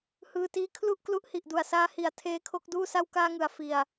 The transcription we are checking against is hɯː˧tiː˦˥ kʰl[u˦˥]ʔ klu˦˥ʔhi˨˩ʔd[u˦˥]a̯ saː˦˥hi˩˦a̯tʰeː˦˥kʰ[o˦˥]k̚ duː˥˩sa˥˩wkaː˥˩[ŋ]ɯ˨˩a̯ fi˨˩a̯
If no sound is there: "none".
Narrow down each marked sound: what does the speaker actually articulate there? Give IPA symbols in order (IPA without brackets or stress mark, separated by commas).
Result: u˥˩, u˨˩, o˥˩, ŋ